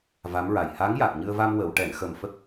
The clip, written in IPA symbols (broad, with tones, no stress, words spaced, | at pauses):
va˧˥mɹa˨˩j ha˧˥ŋja˨˩k̚ɲɨ˧ə̯va˧m wə˨˩˨w ʈɛ˨˩˨nxə˨˩m fə˦˥k̚